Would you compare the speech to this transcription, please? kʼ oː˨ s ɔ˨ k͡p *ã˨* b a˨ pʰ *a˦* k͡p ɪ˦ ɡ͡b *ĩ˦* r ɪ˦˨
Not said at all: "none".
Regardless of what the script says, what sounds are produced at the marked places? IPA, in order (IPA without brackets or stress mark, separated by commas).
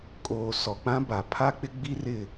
ã˦, a˦, i˦